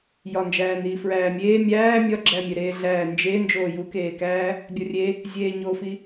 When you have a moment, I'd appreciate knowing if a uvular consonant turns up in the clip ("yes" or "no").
no